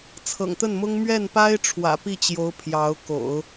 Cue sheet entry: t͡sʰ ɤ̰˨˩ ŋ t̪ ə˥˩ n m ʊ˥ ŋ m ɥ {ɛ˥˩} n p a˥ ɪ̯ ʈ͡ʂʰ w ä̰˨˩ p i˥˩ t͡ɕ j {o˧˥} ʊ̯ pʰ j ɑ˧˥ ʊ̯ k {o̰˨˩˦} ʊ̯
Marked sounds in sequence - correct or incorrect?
correct, correct, correct

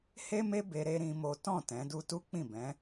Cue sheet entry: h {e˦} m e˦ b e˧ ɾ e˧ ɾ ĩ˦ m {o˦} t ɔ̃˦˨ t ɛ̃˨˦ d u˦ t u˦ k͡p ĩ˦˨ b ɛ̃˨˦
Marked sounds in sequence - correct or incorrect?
correct, correct

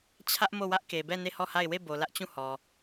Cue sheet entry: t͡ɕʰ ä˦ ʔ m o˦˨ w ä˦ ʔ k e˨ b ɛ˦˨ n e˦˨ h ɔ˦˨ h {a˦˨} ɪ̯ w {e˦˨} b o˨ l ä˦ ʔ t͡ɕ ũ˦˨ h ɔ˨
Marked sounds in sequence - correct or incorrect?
correct, correct

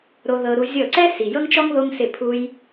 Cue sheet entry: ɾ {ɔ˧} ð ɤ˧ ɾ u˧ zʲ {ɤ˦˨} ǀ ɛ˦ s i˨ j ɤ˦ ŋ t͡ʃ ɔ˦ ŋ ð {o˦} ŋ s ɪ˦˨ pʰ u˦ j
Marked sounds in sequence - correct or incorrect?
incorrect, correct, correct

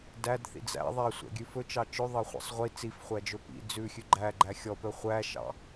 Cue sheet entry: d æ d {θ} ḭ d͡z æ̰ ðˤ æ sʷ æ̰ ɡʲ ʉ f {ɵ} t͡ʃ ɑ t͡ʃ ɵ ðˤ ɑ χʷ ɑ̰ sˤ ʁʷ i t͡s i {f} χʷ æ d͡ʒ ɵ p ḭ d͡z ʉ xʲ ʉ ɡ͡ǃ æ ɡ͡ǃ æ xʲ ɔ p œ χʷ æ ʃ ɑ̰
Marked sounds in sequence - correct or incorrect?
correct, correct, correct

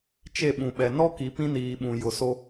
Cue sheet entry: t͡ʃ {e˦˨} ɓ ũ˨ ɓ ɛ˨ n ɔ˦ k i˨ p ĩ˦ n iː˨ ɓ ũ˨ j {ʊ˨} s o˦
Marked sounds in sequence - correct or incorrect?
correct, correct

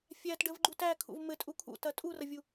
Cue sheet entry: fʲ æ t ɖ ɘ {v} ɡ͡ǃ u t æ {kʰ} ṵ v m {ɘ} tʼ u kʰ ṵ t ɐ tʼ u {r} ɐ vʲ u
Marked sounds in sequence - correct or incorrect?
correct, correct, correct, correct

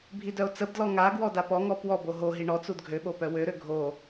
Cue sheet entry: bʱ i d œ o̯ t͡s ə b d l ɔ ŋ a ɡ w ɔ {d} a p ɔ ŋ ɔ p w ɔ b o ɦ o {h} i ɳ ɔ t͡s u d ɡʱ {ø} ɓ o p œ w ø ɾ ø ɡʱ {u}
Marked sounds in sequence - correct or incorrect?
correct, incorrect, correct, incorrect

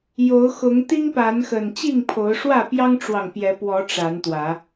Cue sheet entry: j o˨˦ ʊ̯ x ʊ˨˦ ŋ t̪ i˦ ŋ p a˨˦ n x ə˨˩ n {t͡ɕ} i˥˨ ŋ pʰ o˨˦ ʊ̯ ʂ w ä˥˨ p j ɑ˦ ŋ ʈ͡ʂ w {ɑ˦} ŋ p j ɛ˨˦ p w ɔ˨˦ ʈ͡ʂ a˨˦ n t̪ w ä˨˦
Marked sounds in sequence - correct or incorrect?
correct, incorrect

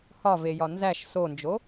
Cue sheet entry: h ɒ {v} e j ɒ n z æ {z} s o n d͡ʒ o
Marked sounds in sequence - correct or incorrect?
correct, incorrect

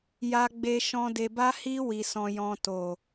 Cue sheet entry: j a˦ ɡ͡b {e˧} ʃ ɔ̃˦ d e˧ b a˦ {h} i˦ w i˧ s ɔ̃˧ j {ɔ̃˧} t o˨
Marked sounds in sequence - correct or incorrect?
incorrect, correct, correct

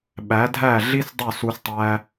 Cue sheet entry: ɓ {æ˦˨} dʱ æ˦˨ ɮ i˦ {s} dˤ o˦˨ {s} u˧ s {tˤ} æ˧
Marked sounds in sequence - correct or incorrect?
incorrect, correct, correct, correct

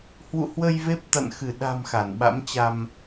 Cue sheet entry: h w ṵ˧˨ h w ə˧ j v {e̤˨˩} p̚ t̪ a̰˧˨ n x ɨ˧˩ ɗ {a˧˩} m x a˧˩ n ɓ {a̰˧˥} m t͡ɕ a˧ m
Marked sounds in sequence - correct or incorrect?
incorrect, incorrect, correct

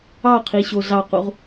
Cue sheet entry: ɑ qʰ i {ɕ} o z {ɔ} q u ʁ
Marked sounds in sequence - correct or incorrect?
correct, incorrect

